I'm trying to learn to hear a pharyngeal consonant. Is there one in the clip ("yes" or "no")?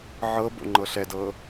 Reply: yes